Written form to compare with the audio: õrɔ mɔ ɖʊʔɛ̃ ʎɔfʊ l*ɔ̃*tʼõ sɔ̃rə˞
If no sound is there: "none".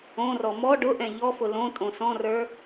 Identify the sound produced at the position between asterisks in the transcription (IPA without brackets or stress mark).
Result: õ